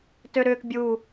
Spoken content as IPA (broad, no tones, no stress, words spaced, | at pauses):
tøɾʏːk bʲuː